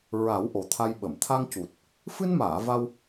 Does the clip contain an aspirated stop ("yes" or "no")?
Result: yes